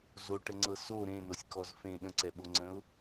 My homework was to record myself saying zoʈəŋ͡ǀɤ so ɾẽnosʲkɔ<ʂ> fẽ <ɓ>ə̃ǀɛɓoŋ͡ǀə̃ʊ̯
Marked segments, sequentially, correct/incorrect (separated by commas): incorrect, incorrect